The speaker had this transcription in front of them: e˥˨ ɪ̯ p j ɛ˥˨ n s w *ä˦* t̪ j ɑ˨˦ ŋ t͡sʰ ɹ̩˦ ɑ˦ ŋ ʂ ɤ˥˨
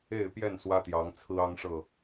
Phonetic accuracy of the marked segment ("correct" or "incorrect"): correct